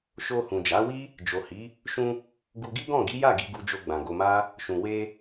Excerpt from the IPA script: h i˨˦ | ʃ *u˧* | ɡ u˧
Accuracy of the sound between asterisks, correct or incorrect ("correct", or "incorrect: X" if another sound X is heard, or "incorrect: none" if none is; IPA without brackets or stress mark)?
incorrect: ũ˧